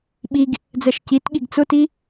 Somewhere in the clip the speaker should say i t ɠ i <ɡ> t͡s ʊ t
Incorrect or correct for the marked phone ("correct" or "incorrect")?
correct